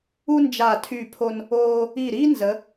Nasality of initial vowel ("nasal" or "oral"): oral